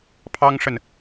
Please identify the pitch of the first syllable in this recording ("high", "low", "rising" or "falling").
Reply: high